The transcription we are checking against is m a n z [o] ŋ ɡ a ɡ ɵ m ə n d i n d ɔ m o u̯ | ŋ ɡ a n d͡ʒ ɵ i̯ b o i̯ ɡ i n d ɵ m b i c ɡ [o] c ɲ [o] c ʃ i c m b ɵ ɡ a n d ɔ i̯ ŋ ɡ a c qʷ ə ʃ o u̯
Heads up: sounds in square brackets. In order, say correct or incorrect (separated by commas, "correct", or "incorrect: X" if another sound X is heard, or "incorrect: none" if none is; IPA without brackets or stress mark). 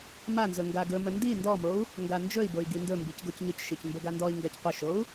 incorrect: ɵ, correct, incorrect: ɵ